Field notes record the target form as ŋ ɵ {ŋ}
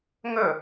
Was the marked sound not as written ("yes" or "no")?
yes